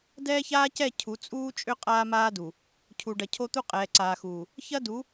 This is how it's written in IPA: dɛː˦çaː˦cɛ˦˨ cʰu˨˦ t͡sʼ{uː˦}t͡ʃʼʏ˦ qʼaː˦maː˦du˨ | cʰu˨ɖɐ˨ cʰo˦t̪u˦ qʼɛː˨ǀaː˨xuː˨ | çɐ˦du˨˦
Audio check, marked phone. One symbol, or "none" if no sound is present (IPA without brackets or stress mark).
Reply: uː˦